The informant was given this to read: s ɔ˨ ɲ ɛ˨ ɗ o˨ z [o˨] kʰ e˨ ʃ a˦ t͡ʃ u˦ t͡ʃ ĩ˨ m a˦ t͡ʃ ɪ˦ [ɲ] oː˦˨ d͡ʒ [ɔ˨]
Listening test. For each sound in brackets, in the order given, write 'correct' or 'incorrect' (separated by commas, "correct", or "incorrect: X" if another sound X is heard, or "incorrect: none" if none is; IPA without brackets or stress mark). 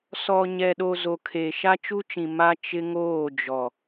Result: correct, incorrect: ŋ, correct